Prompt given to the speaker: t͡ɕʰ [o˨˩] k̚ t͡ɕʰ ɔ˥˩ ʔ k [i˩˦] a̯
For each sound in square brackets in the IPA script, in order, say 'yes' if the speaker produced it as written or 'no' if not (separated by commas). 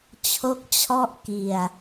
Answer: no, no